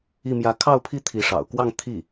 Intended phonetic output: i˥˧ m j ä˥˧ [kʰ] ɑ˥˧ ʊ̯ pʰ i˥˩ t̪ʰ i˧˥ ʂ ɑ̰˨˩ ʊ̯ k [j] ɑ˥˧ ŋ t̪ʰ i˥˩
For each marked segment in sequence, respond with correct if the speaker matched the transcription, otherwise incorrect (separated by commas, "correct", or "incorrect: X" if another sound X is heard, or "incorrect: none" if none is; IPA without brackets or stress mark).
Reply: correct, incorrect: w